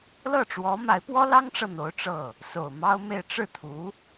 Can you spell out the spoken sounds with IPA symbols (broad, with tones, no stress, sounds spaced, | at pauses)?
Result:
l ɤ˥˩ ʈ͡ʂ w ɔ˧˥ m a˧˥ ɪ̯ p w ɔ˥ l ɑ˥ ŋ ʈ͡ʂ ɤ˨ n̪ o˧˥ ʊ̯ ʈ͡ʂ ɤ˥˩ | s o˨˩ ʊ̯ m ɑ˥ ʊ̯ m e˥˧ ɪ̯ ʈ͡ʂ ɻ̩˥˩ t̪ʰ u˧˥